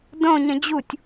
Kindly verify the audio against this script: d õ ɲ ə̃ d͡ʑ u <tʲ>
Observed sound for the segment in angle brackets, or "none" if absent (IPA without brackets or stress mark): tʲ